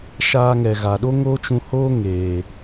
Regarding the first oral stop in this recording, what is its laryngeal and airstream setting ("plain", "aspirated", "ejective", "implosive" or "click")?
implosive